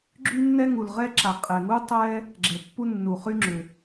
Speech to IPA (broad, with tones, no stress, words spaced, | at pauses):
ɡ͡ǁy˥nːɛ˥ ŋu˩lʁɛ˥ ǁa˩qʼɛ˩ŋu˥ tˤɛ˥ | ɡ͡ǁɛ˩pːu˥ nːu˩χy˥ŋ͡ǁʏ˩